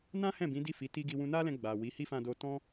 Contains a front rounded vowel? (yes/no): no